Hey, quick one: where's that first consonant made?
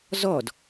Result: tongue tip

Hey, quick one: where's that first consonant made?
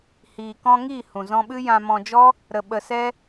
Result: throat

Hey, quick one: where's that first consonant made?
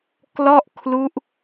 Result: velum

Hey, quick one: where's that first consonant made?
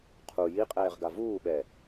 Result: uvula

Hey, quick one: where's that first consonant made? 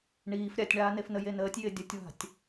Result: retroflex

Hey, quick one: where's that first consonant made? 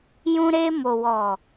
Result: palate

